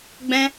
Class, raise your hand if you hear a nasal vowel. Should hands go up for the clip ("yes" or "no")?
yes